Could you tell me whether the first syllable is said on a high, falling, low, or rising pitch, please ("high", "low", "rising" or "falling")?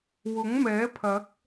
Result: rising